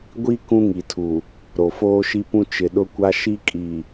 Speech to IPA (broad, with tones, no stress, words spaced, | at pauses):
ɡʷi˦ kũ˦ŋi˨tʰu˨ | ɾo˨foː˦ʃi˦pũ˦ t͡ʃɪ˨ɗʊ˦kʷa˦ ʃi˦kʼi˨